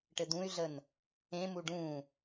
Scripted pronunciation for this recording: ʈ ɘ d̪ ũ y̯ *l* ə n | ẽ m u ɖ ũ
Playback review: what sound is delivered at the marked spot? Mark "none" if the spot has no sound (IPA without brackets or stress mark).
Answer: ɮ